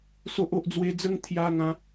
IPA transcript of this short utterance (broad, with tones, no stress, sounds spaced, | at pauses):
s o˦ ʔ o˦ ʔ d͡z w e˦ d͡z ə˥˧ ŋ t̪ʰ j a˧ ŋ ã˨˦